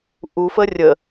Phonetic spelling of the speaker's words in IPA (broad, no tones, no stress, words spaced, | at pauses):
ʔufə rʲə